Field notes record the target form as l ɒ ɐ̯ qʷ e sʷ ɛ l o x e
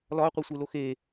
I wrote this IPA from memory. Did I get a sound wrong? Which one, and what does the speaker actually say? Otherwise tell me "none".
ɛ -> e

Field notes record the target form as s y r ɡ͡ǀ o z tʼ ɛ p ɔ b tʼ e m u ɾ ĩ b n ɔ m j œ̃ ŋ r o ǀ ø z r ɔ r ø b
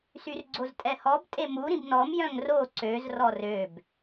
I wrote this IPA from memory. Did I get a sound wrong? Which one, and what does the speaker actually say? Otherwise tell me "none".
p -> h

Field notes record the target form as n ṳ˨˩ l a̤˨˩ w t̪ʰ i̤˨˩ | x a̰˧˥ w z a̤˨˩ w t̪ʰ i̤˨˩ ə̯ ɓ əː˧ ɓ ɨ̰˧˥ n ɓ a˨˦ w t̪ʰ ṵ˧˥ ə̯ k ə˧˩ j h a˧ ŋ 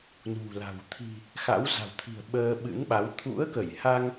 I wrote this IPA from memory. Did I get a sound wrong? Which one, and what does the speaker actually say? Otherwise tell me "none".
none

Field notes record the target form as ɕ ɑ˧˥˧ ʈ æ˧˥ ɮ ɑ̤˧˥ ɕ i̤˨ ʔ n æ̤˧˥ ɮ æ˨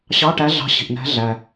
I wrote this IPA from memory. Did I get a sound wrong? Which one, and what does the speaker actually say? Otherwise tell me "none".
none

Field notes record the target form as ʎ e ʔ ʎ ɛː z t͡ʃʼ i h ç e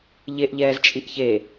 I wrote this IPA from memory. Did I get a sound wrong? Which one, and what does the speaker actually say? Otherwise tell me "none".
h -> ʔ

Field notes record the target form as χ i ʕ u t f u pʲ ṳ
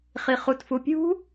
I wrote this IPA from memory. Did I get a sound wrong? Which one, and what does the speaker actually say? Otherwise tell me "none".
ʕ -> χ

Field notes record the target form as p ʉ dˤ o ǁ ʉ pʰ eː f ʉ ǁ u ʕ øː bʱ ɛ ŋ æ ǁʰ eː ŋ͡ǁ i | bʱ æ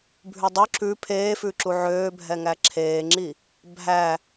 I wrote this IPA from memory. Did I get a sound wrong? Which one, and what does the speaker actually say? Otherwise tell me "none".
p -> bʱ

